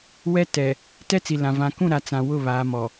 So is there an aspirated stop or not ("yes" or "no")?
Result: no